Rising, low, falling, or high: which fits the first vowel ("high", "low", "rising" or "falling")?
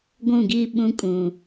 falling